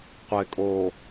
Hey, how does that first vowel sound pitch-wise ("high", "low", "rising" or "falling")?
low